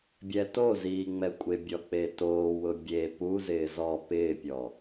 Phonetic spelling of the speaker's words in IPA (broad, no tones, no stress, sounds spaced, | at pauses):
bʲ ɛ t o z iː ŋ͡m ɛ kʷʼ ɪ bʲ ɔ k͡p e t oː w ʊ bʲ e p u z ɪː z ɔ p ɪː pʲ ɔ